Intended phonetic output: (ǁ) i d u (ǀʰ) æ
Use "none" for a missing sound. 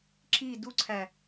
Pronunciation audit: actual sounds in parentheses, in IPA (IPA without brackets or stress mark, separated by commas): ǁ, ǀʰ